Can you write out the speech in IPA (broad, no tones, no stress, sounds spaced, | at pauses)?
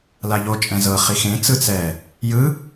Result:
l a ʎ o t͡ʃʼ ɛ̃ z ɤ χ i x ẽ t͡s ɯ t͡s ɛ | j ɯ